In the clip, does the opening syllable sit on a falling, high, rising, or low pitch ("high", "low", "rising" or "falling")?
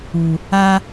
low